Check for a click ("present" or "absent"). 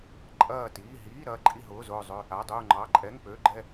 present